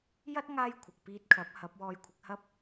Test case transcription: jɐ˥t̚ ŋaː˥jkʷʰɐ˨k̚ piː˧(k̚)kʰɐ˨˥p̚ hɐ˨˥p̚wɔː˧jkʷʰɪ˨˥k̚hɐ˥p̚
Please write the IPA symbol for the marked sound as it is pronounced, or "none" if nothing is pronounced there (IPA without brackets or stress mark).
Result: t̚